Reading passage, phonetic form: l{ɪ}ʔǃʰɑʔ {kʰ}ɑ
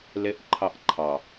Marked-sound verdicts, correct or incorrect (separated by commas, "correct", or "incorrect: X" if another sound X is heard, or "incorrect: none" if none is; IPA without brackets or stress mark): correct, incorrect: ǃʰ